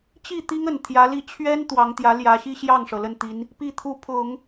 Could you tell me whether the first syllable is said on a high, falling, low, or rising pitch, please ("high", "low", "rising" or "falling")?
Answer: falling